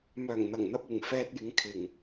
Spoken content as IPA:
mœː˨˩ŋn̪ɐ˨˩ŋn̪ɐ˧p̚ ɪ˨˩ŋ fɛː˧t̚jɪ˨˧ŋ kʰɪ˨˩ŋ

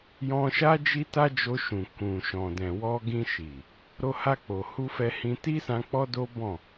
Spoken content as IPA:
jɔ̃˧ʃa˦ d͡ʒi˦ta˦d͡ʒo˧ʃũ˨ kũ˨ ʃɔ̃˨dɛ̃˨wɔ˧ ɡĩ˧ʃi˨ | ɾo˧ha˧ k͡po˨hu˧fɛ˧ hĩ˧ ti˦sã˧ k͡pɔ˦do˦bɔ̃˦˨

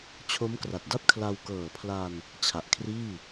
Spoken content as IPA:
t͡ɕʰo˦˥mkra˨˩t̚da˥˩p̚ kʰla˧wkɤː˨˩pʰla˧n | t͡ɕʰa˨˩ʔkʰriː˥˩

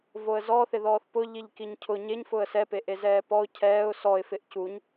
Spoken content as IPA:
voə̯zɔ θɪðɔːθpʊ ʎiʎkiɲcʰʊ ɲeɲ fʊə̯sɛ peʔezɛːpɔʊ̯ cʰɛːʊ̯ sɔɪ̯ fɪʔcuɲ

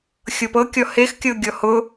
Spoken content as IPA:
xʲɤpɤkʲɔ hexkʲɤ ɡʲɔhʊ

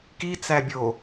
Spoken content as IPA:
kit͡sæ bʲo

